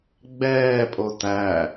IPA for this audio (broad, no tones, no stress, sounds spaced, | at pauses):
ɡ͡b ɛː pʼ o t æ